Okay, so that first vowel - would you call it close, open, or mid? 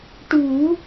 close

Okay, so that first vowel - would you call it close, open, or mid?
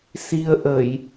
close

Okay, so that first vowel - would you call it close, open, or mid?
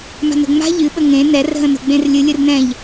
open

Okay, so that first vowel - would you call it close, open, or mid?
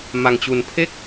open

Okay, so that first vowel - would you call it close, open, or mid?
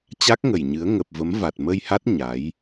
open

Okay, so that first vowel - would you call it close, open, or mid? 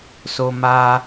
mid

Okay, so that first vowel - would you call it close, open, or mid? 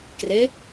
mid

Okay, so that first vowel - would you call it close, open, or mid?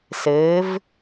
mid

